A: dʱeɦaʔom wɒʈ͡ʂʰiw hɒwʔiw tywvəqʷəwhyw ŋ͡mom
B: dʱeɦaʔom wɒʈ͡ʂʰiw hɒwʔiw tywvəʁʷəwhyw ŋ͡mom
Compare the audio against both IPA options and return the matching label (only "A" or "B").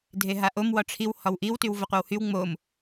A